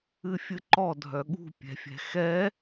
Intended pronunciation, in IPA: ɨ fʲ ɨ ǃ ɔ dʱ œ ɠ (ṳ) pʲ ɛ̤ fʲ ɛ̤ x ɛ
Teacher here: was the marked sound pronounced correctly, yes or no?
yes